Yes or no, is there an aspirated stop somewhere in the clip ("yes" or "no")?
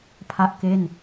yes